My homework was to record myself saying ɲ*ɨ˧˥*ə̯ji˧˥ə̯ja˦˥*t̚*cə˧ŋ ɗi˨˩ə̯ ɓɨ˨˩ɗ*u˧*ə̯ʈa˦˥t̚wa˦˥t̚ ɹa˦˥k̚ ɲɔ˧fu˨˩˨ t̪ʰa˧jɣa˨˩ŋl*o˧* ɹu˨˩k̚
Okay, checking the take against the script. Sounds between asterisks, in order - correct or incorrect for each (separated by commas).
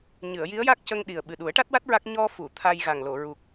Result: incorrect, incorrect, incorrect, incorrect